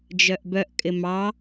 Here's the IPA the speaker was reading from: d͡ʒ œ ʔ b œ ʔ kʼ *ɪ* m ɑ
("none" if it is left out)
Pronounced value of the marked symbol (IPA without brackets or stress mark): ɪ